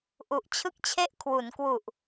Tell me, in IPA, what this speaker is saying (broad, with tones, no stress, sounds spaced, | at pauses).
ʔ u˨˩ ʔ t͡ɕʰ ɯ˥˩ k̚ t͡ɕʰ e˥˩ ʔ kʰ w u˩˦ n k w u˨˩ ʔ